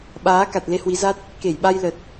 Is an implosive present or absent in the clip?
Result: present